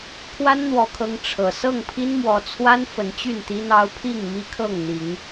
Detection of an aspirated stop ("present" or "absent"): present